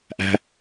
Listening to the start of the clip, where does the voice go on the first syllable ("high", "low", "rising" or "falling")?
low